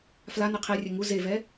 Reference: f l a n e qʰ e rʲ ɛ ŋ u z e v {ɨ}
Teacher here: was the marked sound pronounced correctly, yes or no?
no